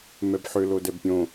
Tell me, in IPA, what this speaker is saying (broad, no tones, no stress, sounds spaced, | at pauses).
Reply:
m ɛ b ħ ʏ l o d ɛ b pʲ õ